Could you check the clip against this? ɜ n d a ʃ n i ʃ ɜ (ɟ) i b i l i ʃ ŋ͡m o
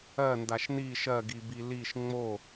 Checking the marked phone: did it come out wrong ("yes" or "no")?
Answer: yes